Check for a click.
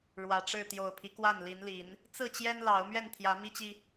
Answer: absent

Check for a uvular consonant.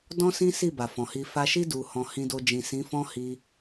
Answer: absent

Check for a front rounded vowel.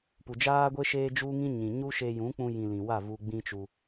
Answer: absent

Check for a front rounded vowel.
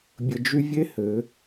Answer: present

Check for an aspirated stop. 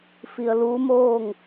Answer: absent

